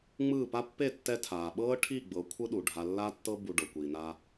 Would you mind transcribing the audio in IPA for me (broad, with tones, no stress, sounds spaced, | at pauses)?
ŋ͡m ɯː˦˨ p a˦ pː e˦˨ tː ɛ˧ tʰ aː˨ ɓ ɤː˦ ʈʰ i˦˨ ɡ͡b ɤ˨˦ kʷʰ ɯ˦ ɗ u˨ ɖʱ a˧ lː a˦ tː ɤ˦ b u˧ ɖ ɤ˨ kʷ iː˨ n a˧